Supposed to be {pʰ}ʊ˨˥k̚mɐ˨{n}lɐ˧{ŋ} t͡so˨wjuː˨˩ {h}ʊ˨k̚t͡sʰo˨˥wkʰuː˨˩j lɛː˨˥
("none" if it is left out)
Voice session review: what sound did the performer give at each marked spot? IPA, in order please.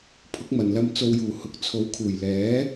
pʰ, n, m, h

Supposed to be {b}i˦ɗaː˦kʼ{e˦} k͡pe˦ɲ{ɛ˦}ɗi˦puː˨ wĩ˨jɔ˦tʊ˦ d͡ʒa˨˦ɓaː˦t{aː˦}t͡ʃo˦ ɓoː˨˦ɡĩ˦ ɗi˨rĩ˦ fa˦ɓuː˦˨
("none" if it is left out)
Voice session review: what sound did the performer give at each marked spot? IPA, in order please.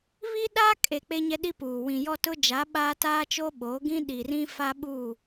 β, e˨, ɛ˦, aː˦

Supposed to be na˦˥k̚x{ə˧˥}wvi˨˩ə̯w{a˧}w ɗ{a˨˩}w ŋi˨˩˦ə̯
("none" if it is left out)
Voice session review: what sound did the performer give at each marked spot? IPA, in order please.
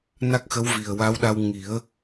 ə˧˥, a˧˥, a˧

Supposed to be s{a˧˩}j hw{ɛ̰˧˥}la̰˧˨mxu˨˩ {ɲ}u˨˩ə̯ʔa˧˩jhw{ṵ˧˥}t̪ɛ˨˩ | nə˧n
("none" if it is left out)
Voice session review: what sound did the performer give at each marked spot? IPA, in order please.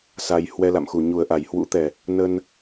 a˧, ɛ˧, ɲ, ṵ˧˥

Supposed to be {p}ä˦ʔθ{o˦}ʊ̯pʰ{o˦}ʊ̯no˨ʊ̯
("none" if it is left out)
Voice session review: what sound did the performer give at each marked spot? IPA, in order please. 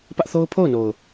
p, o˦, o˦˨

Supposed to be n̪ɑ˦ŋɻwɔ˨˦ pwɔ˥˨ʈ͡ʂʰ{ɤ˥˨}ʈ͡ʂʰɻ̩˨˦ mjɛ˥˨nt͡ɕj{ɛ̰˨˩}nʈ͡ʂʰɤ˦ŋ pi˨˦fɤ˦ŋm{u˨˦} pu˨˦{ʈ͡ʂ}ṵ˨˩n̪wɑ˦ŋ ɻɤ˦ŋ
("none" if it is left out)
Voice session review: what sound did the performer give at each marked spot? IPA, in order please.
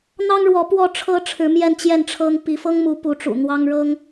ɤ˦, ɛ˥˨, u˨˦, ʈ͡ʂ

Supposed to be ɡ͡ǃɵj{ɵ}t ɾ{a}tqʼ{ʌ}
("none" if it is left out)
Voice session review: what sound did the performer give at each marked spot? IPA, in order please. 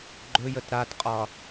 ə, a, ɒ

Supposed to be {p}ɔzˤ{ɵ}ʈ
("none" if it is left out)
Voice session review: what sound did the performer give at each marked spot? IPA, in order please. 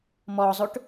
m, ɵ

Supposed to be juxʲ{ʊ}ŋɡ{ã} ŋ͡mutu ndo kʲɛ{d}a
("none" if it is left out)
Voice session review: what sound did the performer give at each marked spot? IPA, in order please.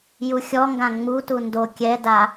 ɔ, ã, d

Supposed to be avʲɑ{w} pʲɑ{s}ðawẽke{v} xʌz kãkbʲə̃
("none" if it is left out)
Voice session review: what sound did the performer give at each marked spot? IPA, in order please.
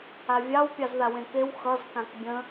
w, z, w

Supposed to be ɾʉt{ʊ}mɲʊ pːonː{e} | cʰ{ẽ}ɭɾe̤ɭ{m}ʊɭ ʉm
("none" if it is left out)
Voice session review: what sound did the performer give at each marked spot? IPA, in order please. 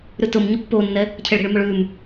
ʊ, ɛ, e, m

